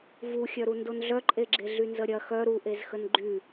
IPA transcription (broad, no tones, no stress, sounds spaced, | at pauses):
v u xʲ œ ɾ u n d o n ɮ œ ǃʼ e ɡ͡ǁ e ɮ y n z ə ɾʲ ɐ x œ ɾ u ʔ e z x ə n ɡ͡ǃ y